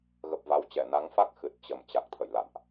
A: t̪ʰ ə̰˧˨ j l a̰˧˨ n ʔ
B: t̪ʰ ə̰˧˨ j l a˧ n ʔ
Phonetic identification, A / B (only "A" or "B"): A